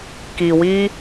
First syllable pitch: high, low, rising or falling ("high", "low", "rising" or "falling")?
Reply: low